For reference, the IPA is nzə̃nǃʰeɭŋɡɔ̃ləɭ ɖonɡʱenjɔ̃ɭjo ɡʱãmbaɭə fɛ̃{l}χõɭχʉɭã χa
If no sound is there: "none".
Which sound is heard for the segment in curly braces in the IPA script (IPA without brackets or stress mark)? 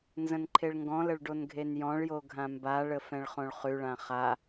ɭ